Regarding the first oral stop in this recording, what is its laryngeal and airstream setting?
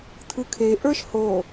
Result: aspirated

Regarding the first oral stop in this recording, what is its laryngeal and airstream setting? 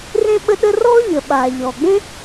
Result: implosive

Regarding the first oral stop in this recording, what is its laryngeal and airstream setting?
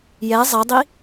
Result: plain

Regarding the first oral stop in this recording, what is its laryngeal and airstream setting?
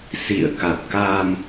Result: plain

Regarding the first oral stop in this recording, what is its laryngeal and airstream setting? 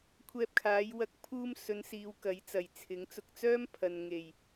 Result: aspirated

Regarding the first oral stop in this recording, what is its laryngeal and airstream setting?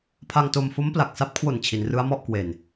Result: aspirated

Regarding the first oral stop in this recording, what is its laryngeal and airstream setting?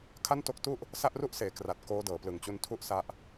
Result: aspirated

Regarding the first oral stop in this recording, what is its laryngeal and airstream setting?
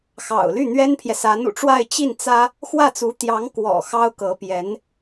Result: aspirated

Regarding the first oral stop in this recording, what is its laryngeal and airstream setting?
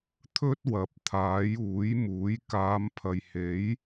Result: aspirated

